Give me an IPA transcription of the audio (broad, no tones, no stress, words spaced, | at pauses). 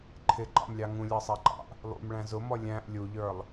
ǃʰɪǃɑ̰mlʲɑ ŋũlʲɑsˤæǃɑ̰ʔ | lˠṵm ɭæ̃zʊmɔ lʲæ̃ʔ lʲuʎə˞lˠ